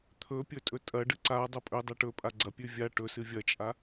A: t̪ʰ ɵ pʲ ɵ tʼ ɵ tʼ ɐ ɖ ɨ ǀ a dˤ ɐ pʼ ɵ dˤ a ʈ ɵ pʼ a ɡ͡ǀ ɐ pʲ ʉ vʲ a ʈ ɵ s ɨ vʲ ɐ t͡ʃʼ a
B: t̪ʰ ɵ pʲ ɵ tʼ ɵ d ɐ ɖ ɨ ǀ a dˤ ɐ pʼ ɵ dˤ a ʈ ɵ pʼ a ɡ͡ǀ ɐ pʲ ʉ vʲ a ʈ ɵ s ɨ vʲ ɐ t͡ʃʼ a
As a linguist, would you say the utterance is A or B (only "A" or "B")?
A